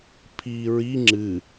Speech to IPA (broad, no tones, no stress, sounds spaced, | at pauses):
pʰ iː ɹ i ŋ͡ǁ ɨ